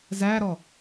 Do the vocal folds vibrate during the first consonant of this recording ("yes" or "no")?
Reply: yes